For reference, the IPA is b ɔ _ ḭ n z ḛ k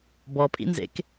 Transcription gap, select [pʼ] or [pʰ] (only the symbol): pʼ